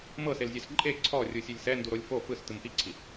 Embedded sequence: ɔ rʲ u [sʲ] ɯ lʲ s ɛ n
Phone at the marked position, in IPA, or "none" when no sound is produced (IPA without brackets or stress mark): sʲ